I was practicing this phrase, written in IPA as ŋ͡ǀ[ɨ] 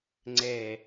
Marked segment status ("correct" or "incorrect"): incorrect